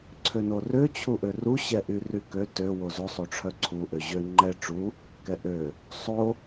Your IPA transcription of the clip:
ǀʰ ø n o r ø t͡ɕʰ u ʔ ø r u ɕ ɛ ʔ y r y k ø t ø w o z o sˤ o ʈ͡ʂʰ œ ǀʰ u ʔ ø ʑ ø ŋ͡ǃ ɛ ʈ͡ʂ u | k ɛ ʔ ø | sˤ o

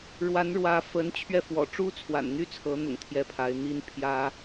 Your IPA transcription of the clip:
ɻ w a˧˥ n ɻ w ä˧˥ f ə˧˥ n t͡ɕʰ ɥ ɛ˥˩ f w ɔ̰˨˩ ʈ͡ʂ u˥ t͡sʰ w a̰˨˩ n n̪ y˥ t͡sʰ ɤ˧˥ n̪ ʊ̰˨˩ ŋ t̪ʰ j ɛ˥˩ pʰ a˧˥ ɪ̯ n̪ i˥ n pʰ j ä˥

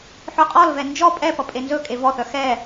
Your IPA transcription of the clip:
ħ œ qʼ ɔ l v ɛ n d͡ʒ ɔ pʼ ɛ p ʌ pʼ e n z ɵ kʼ e v ɔ θ œ x ɛ

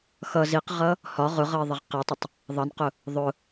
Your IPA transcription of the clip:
x ʌ z i q ʁ ʌ | h ɒ ʁ ʊ ʁ ʌ ɪ̯ ðˤ ə ʁ q ɪ tˤ ʊ tˤ | ðˤ ʌ n q ʊ | ðˤ ʊ

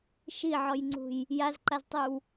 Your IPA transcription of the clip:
ʃ i ʕ ɔ j ŋ͡ǀ ṳ j | j a z ǃ a z tˤ y w

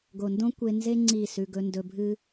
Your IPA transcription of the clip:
ɡ o˨ n d õ˦ kʷ e˧ n z e˦ ŋ͡ǀ i˦˨ s ʉ˧ ɡ ɵ˧ n d ɵ˧ bʱ ɨ˦

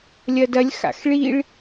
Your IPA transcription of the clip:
lʲ ɐ d ɐ lʲ x a̰ x ɭ i ɭ

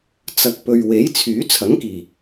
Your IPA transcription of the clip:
t͡s ɐ˨ k̚ p ɵ˨ ɥ w e˨˥ j t͡sʰ yː˨˥ t͡sʰ ɐ˨˥ ŋ k iː˨˩

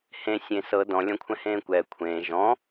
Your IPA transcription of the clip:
h ẽ sʲ ẽ s ɤ d ɔ̃ lʲ ɔ̃ kʷʰ ɛ̃ h ẽː kʷ ɛː kʷʰ ẽː ʒ ɔ̃

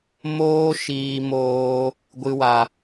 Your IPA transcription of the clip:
m oː˦ ʃ iː˧ m oː˧ | ɡʷ ɨ˦ w a˧

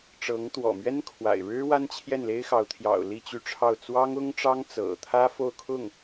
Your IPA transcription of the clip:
ʈ͡ʂ ɤ˧˥ ŋ t̪ w ɔ̰˨˩ m ɥ ɛ˥ n kʰ w a̰˨˩ ɪ̯ ɻ ɻ̩˥ w a˥ n t͡ɕʰ j ɛ˥˩ n l e˥ ɪ̯ x ɑ˧˥ ʊ̯ t̪ʰ j ɑ̰˨˩ ʊ̯ l i˥˧ t͡ɕ y˥˧ ʈ͡ʂʰ ɑ˥˩ ʊ̯ t͡s w ɑ˥ ŋ ʊ˥ ŋ ʈ͡ʂ ɑ˥ ŋ t͡s ɤ̰˨˩ t̪ʰ ä˥ f o˥˧ ʊ̯ kʰ ʊ˥˩ ŋ

